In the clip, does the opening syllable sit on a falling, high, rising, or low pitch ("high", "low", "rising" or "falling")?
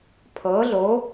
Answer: rising